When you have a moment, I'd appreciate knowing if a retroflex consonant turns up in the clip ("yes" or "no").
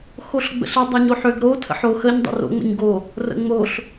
no